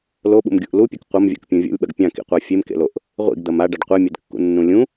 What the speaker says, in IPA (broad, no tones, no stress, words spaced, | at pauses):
loɓṵmɡʲuʔ lupʲɨk qʷɐmvʲa̰kpʲũ vʲo̰lʲɓɐɡ pʲãkḭqʷa fʲemkḛloʔ | ʁʷḭɡd̪ɐm aɖaɖ qʷemʲedkːṵnːũ lʲũ